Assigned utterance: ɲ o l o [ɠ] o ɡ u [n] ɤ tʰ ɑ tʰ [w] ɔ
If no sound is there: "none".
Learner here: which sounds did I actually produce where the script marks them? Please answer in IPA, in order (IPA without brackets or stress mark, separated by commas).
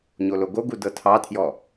ɡ, d, j